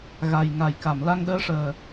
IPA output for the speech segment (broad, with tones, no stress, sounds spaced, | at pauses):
ɣ a˨˩ j ŋ a˨˩˨ j k a˨˩˨ m l a˧ ŋ ɗ əː˧˥ ʂ əː˨˩